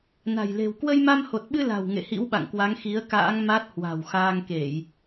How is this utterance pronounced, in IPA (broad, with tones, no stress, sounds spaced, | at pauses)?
n a̤˨˩ j l e̤˨˩ w k w ə˧ j m a˧ m h o˨˩ t̚ ɓ ɨ˧ l a̤˨˩ w ŋ ḛ˧˨ h ḭ˧˥ w ɓ a̰˧˨ ŋ k w a˨˦ ŋ x i˨˦ ə̯ k a̰ː˧˥ ŋ m a˦˥ t̚ h w a̤˨˩ w x aː˧ ŋ k e˧˩˨ j